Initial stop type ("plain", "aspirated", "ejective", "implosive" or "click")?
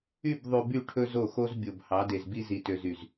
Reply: plain